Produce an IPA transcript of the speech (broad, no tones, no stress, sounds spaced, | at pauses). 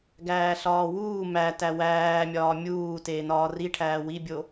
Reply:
ɡ æː ɬ ɒː w uː m æ t æ w æː mʲ ɒː mʲ uː t eː n ɒː r i ʈʰ æː w i bʲ o